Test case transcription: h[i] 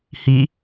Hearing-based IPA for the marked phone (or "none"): i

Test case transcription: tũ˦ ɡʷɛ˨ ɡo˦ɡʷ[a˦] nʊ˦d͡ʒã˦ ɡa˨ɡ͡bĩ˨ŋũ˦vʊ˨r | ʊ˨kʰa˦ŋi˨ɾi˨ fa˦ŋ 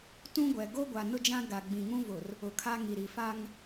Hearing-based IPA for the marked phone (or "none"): a˨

